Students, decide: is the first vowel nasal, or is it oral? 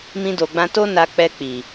nasal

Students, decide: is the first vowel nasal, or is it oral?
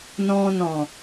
nasal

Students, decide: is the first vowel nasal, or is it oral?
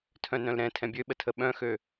nasal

